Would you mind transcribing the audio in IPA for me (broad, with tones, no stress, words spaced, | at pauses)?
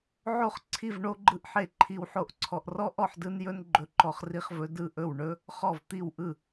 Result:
ʕo˦χ ǀʰi˥˨vɳo˦ɡ͡ǃɯ˦ʔ ħe˥˨ǃʰi˦wħo˥˨ʔǀʰɔ˦ʔ rɔ˦ʔɔ˥˨ħdɯ˦njɵ˦n ɡ͡ǃɵ˦ǃɔ˦χri˦χvɵ˦ dɯ˥˨ʔɵ˥˨w ɳɵ˦ | χɔ˥˨vt̪i˥˨wʔɯ˥˨